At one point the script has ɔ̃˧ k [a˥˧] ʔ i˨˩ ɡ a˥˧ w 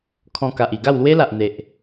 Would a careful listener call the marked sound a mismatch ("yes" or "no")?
yes